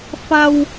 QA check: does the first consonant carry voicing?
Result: no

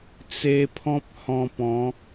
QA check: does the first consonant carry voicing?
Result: no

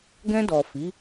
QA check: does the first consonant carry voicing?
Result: yes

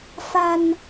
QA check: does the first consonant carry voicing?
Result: no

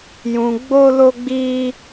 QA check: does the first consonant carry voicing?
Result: yes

